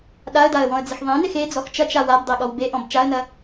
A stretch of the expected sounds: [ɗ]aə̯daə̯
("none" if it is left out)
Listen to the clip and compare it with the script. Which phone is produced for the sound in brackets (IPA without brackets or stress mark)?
ɗ